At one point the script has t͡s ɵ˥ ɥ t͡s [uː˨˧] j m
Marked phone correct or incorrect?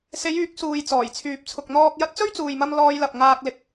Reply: incorrect